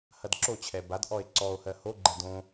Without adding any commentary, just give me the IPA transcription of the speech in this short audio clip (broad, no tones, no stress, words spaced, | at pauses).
hɐdǁot͡ɕʰɛ badʔɔe̯ ǀɔo̯hɜ hoɡ͡ǃɛ dõ